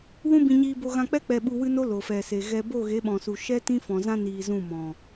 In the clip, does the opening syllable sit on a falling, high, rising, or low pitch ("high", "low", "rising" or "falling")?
high